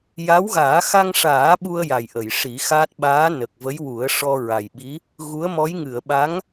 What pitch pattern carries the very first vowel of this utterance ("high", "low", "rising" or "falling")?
rising